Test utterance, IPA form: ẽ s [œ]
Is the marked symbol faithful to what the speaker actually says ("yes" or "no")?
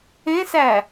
no